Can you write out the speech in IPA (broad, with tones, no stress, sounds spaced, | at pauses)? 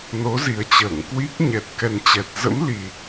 n o˨˦ z i˨˩ ə̯ t͡ɕ əː˧˩ ŋ k w i˦˥ k̚ ɲ ɛ˨˩ t̚ k ɛ˨˩ n t͡ɕ ɛ˨˩ t̚ z ə̰˧˥ m l i˨˩